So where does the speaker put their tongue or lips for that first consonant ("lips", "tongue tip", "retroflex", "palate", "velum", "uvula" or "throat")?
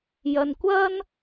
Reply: palate